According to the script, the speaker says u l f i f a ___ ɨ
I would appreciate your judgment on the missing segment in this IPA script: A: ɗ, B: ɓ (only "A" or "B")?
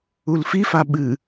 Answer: B